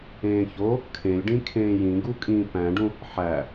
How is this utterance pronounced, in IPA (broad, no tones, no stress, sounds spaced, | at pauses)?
ẽː ç o | kʰ ẽ lʲ ɖ ĩ kʰ ẽː j ĩ ɡ u kʼ ĩː p æ̃ ɖ ũ | ħ æ